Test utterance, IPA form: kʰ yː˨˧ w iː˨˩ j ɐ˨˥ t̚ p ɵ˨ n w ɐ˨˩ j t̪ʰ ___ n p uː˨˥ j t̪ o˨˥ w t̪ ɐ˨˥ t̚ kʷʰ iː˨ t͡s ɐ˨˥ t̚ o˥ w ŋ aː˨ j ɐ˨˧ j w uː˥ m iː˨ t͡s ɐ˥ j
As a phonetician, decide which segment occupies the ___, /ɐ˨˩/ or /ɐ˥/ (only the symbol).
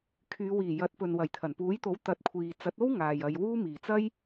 ɐ˨˩